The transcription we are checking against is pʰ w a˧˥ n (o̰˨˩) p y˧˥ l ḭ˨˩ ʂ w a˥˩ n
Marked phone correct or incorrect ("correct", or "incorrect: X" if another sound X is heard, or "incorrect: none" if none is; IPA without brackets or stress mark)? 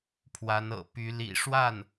incorrect: ɤ̰˨˩